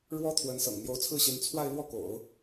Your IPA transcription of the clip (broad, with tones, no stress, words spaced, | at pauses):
ɻwɔ˥t̪ʰwə˧˥nsɤ̰˨˩ŋ n̪jo˧˥ʊ̯t͡sʰɹ̩˥˩ɕi˧˥n t͡sʰwa˥˧ɪ̯lwɔ˥˩ko̰˨˩˦ʊ̯